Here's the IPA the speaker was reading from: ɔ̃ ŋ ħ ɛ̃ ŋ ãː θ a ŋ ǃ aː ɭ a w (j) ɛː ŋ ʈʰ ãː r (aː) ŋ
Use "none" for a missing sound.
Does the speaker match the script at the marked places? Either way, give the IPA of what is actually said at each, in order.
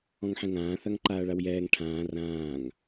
j, ãː

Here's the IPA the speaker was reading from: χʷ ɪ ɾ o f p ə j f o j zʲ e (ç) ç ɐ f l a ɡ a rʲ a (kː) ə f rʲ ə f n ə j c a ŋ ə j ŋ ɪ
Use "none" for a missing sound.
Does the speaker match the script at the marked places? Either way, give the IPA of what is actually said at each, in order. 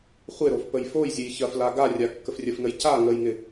j, kː

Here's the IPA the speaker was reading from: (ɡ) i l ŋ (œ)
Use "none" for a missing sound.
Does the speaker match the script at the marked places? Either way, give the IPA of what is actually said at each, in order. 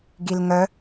ɡ, œ

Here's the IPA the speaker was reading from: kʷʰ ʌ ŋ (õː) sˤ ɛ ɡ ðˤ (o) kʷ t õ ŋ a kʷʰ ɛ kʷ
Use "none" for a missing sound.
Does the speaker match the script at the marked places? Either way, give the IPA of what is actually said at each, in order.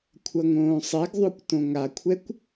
õː, o

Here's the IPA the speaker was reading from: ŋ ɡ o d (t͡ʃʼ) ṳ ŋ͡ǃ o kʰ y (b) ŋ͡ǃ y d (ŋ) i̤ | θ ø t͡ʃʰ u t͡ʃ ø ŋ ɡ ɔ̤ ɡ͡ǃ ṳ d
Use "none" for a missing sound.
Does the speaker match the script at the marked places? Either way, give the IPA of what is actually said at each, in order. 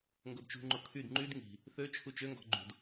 t͡ʃ, d, ŋ

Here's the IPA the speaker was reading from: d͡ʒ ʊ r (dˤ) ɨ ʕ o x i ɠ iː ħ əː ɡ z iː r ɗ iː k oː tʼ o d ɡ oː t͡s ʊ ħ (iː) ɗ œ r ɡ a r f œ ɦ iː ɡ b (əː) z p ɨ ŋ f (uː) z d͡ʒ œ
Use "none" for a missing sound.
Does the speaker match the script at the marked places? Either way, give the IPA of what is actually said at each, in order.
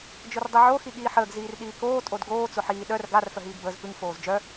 dˤ, iː, əː, oː

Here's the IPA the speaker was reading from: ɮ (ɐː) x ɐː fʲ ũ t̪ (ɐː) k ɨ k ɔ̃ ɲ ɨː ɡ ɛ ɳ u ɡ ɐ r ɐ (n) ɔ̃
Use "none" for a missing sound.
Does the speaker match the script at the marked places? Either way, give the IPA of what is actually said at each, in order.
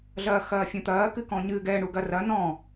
ɐː, ɐː, n

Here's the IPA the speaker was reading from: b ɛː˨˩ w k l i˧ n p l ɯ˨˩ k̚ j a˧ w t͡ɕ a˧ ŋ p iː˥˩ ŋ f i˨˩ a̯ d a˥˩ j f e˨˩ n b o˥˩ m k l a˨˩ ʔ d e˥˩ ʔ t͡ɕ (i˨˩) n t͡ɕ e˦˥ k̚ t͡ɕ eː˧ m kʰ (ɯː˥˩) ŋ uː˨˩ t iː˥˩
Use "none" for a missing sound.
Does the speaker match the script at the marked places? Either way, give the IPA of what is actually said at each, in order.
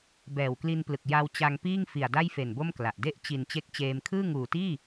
i˨˩, ɯː˥˩

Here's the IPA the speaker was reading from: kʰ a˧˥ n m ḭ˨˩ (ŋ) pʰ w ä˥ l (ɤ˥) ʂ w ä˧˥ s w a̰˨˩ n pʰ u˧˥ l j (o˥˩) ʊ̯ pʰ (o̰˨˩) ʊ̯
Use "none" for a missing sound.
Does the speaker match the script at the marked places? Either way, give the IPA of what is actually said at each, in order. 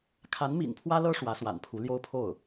n, ɤ˥, o˥, o˥˩

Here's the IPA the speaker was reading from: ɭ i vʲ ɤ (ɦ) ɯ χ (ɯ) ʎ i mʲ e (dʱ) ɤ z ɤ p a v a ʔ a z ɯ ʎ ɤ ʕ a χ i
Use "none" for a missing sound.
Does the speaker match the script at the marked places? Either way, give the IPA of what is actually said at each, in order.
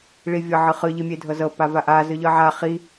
ʕ, ɯ, dʱ

